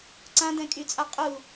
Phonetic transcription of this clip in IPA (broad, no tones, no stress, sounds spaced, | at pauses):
ǀ ã d ɛ̃ kʼ y t͡sʼ a qʼ u